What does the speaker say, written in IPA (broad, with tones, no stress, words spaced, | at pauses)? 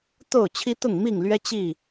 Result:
t̪o˥˨ʊ̯ t͡ɕʰi˦t̪ʊ˥˨ŋmi˥˨ŋlɥɛ˦ t͡ɕi˥˨